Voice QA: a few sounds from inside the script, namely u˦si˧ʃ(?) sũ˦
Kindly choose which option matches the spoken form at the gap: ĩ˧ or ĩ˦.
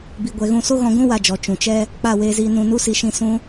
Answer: ĩ˧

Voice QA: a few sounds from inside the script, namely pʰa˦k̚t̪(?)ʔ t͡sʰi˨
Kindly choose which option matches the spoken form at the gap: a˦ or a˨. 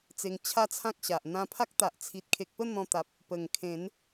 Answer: a˨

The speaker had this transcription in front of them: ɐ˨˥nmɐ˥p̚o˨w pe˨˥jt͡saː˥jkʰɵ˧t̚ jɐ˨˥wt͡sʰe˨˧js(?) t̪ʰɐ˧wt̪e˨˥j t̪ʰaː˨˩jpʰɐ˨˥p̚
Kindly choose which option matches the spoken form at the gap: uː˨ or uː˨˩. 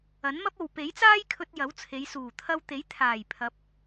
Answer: uː˨˩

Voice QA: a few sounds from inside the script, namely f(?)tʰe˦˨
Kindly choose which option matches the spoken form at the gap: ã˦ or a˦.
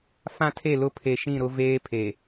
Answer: ã˦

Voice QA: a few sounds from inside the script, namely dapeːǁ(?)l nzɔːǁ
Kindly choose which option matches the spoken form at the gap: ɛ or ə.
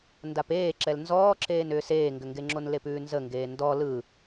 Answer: ɛ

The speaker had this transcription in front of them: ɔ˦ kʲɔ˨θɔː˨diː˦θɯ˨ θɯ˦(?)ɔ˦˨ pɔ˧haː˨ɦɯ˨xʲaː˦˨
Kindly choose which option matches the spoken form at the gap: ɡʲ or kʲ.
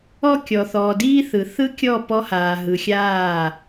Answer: kʲ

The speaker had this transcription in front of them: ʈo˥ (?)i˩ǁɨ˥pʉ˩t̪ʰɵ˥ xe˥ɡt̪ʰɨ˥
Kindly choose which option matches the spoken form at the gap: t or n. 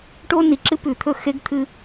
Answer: n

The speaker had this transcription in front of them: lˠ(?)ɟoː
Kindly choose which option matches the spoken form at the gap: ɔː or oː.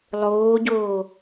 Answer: oː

